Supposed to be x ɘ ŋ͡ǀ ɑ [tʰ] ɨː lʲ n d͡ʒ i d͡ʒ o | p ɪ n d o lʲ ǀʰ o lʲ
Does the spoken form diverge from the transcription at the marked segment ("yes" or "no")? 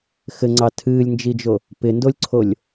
no